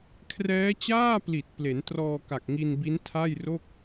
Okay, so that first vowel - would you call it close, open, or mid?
mid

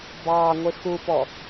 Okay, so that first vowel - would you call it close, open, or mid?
open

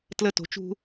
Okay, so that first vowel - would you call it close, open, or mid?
mid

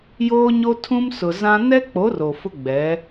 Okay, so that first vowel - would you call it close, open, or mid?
mid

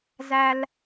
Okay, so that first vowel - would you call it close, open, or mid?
open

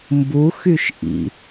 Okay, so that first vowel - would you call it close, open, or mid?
close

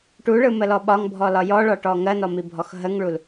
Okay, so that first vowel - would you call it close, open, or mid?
close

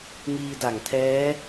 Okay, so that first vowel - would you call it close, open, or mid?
close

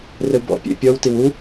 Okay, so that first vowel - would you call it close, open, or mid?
mid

